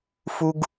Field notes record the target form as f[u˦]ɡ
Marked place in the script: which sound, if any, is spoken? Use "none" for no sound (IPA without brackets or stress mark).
u˦